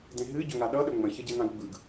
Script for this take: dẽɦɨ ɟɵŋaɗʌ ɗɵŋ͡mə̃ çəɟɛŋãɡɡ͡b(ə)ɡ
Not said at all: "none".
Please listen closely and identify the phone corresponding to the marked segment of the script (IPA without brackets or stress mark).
ɯ